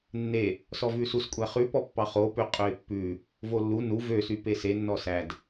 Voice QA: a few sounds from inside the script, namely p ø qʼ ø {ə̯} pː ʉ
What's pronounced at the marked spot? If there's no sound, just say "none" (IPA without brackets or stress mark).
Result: ɪ̯